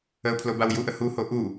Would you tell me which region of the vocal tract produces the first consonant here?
lips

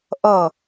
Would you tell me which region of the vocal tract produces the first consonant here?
throat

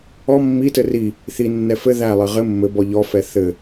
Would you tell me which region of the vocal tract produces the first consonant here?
lips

